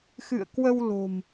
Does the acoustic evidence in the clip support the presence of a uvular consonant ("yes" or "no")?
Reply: no